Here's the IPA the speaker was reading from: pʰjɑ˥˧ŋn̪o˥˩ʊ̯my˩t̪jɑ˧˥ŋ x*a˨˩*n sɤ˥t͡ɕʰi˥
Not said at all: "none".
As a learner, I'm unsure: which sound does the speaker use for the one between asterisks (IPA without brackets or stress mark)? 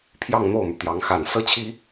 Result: a˨˩